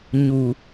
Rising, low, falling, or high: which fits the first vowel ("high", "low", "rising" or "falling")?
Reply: low